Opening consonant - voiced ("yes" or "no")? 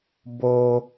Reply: yes